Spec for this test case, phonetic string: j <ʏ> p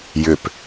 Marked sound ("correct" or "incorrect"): correct